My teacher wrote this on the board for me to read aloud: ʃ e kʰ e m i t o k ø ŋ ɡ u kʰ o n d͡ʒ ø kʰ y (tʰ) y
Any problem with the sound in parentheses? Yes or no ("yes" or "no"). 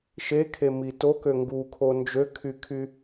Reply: yes